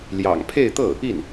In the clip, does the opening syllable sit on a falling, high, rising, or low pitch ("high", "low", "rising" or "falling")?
low